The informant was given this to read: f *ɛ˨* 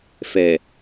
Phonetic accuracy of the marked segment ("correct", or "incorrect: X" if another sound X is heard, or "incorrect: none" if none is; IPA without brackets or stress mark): correct